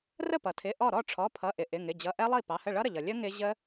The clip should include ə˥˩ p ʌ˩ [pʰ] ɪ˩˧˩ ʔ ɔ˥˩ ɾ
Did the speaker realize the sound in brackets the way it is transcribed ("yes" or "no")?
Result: no